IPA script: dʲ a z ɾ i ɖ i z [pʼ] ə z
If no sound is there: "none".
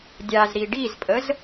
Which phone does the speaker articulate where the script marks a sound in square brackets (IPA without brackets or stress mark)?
pʼ